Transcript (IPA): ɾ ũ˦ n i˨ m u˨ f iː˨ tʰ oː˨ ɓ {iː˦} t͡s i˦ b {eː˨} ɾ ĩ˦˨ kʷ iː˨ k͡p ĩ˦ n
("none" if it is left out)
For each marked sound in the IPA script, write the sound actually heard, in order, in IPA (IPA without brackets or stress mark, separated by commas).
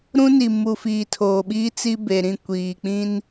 iː˦, e˨